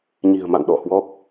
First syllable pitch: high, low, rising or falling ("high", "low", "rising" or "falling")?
low